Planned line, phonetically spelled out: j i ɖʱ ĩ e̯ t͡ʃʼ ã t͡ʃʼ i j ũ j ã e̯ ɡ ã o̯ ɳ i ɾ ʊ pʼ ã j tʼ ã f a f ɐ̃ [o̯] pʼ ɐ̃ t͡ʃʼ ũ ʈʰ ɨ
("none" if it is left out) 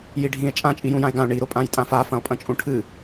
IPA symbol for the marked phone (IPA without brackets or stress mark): o̯